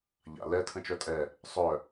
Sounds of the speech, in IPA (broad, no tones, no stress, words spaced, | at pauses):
ʎa̰ lɛ tʰə̃t͡ʃœtʼɛ | sˤœ